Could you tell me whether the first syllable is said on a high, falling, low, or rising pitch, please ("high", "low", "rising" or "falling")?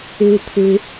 high